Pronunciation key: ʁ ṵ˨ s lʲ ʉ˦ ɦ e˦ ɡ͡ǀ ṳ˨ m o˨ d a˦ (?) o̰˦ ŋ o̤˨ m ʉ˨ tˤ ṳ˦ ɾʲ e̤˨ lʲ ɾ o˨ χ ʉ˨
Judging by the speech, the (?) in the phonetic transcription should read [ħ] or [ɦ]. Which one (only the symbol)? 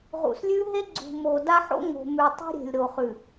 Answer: ħ